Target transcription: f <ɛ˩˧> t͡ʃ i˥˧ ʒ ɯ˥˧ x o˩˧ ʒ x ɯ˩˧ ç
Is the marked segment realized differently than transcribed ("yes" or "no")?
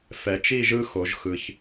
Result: no